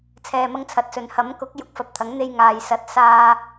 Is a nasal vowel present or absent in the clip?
absent